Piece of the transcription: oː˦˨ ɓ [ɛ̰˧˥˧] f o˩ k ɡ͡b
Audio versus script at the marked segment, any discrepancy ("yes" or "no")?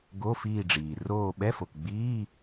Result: yes